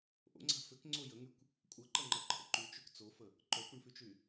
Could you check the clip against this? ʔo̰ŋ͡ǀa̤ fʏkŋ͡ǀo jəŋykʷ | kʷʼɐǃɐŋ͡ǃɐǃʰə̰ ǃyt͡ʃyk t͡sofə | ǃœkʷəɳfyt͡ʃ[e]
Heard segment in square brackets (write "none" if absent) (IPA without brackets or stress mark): y